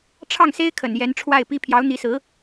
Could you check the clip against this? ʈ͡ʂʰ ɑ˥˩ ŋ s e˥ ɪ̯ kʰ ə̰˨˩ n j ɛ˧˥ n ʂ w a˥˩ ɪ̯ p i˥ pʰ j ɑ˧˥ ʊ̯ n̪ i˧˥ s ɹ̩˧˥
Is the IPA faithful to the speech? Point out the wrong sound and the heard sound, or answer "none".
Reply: ʂ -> ʈ͡ʂʰ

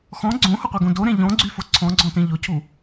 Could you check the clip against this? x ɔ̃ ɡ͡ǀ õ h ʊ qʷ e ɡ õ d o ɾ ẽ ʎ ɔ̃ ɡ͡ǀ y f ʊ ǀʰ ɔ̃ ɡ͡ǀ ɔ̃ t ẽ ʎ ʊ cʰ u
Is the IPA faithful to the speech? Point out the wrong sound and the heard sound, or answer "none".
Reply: none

